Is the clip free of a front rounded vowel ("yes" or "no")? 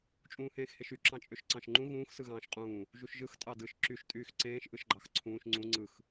no